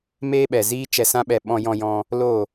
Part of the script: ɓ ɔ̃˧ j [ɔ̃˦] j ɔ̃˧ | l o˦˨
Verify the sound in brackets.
incorrect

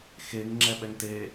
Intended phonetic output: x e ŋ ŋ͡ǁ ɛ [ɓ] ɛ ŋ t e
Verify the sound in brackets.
correct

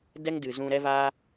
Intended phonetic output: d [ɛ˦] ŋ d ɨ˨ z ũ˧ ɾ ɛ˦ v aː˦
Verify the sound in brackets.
correct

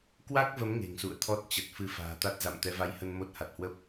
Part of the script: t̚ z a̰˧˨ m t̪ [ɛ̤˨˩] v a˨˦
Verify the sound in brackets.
incorrect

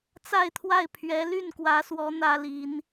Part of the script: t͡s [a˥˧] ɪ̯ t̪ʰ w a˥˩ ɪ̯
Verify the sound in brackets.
correct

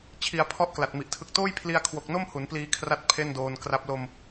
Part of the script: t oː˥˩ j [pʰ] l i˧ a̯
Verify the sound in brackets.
correct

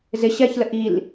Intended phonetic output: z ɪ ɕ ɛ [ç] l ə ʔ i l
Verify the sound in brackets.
correct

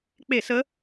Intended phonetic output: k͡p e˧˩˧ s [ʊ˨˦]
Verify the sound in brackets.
incorrect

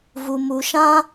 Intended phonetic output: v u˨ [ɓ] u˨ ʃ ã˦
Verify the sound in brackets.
incorrect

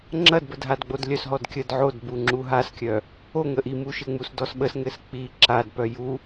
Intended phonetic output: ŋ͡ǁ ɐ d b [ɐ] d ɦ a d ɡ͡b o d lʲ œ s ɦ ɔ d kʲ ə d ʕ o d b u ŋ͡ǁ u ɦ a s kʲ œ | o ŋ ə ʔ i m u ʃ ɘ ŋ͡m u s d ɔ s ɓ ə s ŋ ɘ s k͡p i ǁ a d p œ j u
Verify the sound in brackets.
incorrect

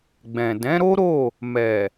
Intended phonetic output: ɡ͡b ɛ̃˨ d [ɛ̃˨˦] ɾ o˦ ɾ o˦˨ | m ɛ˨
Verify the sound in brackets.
correct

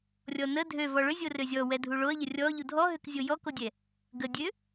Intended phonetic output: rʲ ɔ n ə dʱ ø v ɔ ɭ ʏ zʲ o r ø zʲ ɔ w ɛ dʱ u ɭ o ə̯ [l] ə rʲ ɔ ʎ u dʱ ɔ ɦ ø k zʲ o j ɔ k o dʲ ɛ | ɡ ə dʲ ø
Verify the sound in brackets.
incorrect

